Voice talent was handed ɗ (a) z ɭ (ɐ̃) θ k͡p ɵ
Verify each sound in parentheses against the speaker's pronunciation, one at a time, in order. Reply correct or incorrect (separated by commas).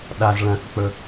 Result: correct, correct